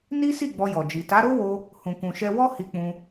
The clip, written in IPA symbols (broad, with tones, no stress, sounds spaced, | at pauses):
n i˦ s i˦˨ ɡ͡b ɔ˧ j ɔ˨ d͡ʒ i˨ t a˨˦ ɾ o˦ w o˧ | h ũ˨ k ũ˨ ʃ ɛ˧ w ɔ˦ h i˧ k͡p ũ˧